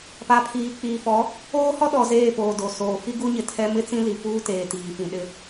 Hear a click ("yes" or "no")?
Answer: no